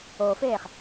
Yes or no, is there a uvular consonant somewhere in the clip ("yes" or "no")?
yes